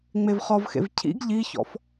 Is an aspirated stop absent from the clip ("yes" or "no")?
no